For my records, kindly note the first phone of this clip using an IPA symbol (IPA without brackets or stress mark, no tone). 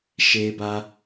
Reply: ʃ